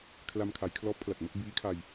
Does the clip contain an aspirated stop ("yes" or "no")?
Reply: yes